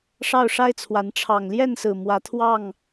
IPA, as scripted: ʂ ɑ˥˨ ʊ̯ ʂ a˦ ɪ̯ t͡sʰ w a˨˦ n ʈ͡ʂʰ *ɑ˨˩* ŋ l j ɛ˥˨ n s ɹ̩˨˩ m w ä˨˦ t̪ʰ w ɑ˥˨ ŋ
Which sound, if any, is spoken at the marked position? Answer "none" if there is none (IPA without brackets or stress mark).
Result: ɑ˨˩